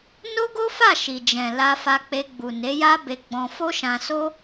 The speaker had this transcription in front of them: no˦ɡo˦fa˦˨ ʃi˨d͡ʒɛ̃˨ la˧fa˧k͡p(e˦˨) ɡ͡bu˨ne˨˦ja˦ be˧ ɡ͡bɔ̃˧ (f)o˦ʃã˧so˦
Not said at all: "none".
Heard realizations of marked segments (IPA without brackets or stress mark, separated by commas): e˧, f